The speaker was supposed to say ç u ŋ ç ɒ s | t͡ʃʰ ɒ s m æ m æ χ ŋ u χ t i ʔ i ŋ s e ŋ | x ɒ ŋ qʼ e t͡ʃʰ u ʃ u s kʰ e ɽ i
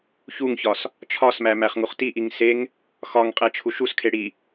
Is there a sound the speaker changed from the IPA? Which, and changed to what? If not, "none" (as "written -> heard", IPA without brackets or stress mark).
none